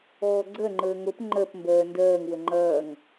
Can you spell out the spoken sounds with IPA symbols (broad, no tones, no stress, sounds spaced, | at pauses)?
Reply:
ɔː ɡ͡ǀ ɜ ŋ͡ǃ əː ŋ o p ŋ͡ǃ ɜ p m b ɜː n d ɜː ŋ w ə ŋ͡ǃ ɐː ŋ